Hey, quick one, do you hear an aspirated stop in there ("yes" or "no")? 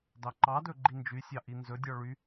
no